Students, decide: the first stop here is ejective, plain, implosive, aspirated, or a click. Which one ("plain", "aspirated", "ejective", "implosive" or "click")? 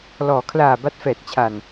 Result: aspirated